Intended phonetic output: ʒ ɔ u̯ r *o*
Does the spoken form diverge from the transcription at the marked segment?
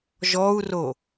no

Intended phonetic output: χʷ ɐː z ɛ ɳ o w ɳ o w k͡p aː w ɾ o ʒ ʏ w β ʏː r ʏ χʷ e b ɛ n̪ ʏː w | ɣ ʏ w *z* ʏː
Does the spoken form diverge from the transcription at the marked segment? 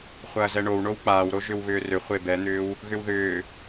yes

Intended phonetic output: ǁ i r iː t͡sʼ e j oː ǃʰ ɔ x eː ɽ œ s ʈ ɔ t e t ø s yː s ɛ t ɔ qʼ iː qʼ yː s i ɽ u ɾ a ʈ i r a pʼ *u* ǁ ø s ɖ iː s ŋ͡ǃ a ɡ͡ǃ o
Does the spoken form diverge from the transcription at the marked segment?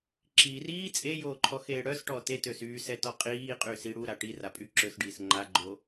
yes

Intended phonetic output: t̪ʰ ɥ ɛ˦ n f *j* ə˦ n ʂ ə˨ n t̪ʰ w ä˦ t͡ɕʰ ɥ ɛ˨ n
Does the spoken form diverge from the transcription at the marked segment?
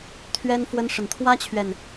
yes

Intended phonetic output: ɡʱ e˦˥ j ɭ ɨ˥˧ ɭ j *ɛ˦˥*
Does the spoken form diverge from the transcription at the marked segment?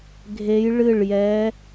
no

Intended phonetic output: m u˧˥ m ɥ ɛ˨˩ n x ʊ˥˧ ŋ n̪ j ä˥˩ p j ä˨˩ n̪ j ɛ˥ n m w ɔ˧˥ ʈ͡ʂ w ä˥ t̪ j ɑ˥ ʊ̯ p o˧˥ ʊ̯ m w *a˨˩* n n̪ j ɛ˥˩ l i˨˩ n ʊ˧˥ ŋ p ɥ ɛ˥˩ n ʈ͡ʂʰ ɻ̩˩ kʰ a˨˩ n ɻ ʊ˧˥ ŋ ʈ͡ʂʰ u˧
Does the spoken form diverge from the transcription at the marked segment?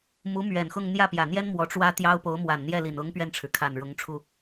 no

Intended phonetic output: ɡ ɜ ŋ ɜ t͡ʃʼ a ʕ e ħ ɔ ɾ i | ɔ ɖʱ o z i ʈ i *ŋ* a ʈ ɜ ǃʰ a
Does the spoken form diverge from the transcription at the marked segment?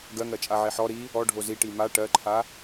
yes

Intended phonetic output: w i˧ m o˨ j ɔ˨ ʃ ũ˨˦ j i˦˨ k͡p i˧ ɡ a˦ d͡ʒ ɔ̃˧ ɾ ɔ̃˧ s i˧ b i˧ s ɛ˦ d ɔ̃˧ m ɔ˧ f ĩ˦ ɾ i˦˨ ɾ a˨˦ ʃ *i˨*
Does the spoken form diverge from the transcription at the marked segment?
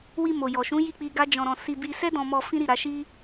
yes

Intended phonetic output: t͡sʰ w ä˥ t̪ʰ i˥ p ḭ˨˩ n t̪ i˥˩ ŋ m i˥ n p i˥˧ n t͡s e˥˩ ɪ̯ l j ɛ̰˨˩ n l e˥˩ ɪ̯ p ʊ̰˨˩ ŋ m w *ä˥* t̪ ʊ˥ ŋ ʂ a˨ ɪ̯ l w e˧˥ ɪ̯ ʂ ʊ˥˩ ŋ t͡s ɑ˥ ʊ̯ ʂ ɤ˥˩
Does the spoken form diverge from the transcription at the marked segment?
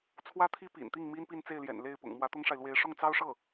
yes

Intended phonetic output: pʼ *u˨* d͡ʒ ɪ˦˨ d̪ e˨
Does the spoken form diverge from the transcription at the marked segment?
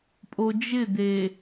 yes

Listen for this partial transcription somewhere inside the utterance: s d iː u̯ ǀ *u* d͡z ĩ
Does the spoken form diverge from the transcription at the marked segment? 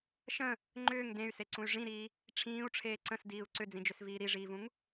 yes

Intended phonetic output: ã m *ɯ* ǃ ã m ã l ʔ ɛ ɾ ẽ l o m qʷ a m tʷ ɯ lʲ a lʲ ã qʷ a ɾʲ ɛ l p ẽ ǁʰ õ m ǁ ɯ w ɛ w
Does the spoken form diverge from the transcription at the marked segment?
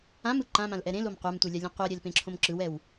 no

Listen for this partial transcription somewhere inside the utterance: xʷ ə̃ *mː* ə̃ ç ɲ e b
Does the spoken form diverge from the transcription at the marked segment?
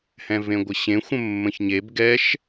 no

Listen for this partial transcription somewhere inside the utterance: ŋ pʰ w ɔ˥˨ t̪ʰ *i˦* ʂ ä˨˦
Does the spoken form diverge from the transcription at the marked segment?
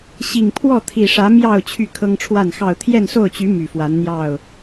yes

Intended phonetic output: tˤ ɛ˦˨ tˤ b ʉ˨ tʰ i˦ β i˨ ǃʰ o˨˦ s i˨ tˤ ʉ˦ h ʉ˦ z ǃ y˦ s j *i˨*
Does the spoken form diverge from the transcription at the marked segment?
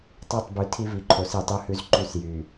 yes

